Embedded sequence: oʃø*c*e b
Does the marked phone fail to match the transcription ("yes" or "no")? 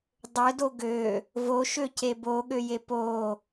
no